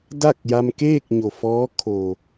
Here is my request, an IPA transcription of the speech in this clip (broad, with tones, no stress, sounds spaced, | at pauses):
d a˥˨ k̚ j a˧ m k eː˥˨ k̚ ɲ o˩ f ɔː˧˥ kʰ o˩